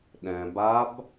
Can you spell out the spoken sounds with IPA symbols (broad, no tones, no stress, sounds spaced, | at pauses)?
ɗ ɛ̃ b a b